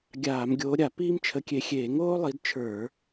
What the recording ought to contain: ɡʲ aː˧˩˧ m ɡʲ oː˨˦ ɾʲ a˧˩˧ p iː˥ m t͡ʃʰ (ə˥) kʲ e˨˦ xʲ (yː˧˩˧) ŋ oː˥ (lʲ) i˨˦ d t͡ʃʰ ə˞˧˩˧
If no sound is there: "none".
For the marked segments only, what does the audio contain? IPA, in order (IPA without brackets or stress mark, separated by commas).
ə˨˦, eː˧˩˧, lˠ